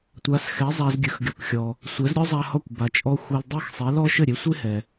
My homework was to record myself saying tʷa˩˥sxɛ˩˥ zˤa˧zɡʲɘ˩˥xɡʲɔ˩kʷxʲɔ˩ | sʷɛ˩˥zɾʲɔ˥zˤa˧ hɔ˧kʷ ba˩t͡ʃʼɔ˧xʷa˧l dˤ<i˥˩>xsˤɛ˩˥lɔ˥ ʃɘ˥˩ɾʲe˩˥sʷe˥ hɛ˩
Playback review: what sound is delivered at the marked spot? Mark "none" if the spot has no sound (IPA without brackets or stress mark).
i˥˩